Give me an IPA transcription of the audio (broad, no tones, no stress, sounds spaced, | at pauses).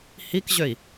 h i k ʑ ø i̯